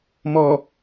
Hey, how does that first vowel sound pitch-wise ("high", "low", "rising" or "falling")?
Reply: low